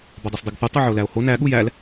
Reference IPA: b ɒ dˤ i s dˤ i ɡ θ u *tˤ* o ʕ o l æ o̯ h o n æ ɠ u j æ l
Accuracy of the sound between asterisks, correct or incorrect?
correct